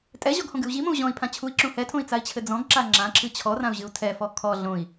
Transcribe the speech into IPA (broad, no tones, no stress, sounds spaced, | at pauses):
tʼ ɛ ʑ ɔ ɡ h õ ɡ ɨ u̯ ʑ i m õ u̯ ʑ ɔ̃ i̯ pʰ ã t͡ɕʰ u i̯ ǁ ũ h ɛ tʰ õ i̯ t͡s a i̯ t͡ɕʰ ɘ d͡z ɔ̃ ɡ ǁ a ŋ͡ǁ ã ǁʰ ɨ t͡ɕʰ ɔ r ã u̯ ʑ ɨ u̯ tʰ ɛ f ɔ kʰ ɔ ɮ õ i̯